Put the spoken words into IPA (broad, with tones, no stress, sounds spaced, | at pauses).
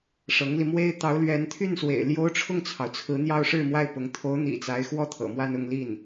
ʂ ɤ˧˥ ŋ l i˧ m w e˥ ɪ̯ t̪ ɑ˧˥ ʊ̯ l ɥ ɛ˧˥ n t̪ʰ y˥˩ n s w ḛ˨˩ ɪ̯ l j o˥ ʊ̯ ʈ͡ʂʰ ʊ˥˩ ŋ t͡sʰ ɑ˩ ʊ̯ t͡sʰ ɹ̩˧˥ n̪ j ɑ˥ ʊ̯ ʂ ɻ̩˥˧ m w a˥˩ ɪ̯ p ʊ˧˥ ŋ t̪ʰ o˧˥ ʊ̯ n̪ ḭ˨˩ t͡s a˧˥ ɪ̯ x w ɔ˥˩ t̪ʰ ɤ̰˨˩ m w a˥˧ n ʊ˥˧ ŋ l i˥˩ n